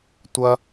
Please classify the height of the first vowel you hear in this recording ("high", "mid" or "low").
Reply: low